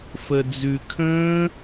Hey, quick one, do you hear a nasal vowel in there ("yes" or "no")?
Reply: yes